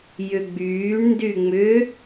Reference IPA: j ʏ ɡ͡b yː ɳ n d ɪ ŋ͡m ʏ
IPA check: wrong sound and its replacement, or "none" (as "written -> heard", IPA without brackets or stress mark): ɪ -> y